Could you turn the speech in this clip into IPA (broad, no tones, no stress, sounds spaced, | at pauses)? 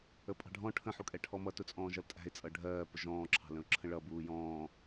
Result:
ə pʼ ɑ̤ ɖʱ ɔ̃ ʈʰ ə̃ ħ u kʼ ɛ ʈʰ ɔ m ʌ t ʊ t͡sʼ ɔ̃ː ʒ ʌ l tʼ æ̤ ɪ̯ t͡sʼ ʌ ɖʱ ɜː p ʊ ʒ ɔ̃ː ǁʰ ɑ̤ l ə̃ ʊ̯ ǁʰ ə̃ ɭ ʌ b uː j ɔ̃ː